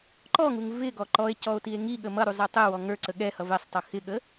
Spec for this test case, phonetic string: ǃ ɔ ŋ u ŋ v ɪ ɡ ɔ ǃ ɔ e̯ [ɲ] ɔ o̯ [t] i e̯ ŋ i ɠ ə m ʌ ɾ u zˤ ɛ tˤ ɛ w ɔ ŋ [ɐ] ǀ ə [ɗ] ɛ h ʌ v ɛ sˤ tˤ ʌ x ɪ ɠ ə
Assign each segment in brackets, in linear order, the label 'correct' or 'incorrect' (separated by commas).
incorrect, correct, incorrect, incorrect